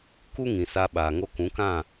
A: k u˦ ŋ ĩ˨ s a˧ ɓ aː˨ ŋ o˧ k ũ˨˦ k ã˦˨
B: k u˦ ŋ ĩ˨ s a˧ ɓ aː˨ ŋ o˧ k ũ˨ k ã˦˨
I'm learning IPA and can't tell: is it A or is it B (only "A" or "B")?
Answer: A